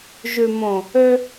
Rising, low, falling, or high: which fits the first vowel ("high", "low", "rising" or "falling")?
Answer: low